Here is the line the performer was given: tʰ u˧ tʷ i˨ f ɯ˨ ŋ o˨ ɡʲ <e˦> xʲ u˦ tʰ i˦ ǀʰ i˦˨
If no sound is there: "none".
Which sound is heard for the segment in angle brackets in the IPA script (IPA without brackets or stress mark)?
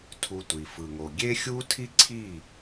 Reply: e˦